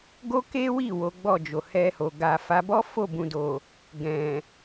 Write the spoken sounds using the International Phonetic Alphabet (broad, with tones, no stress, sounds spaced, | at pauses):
ɡ o˦ k e˦ w i˦˨ w o˨˦ ɡ͡b ɔ˦˨ d͡ʒ o˨ h ɛ˧ h o˨ ɡ a˨ f a˨˦ b ɔ˦ f o˦˨ b ũ˨ d o˨ | ɡ ɛ̃˨